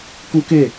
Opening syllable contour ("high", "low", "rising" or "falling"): high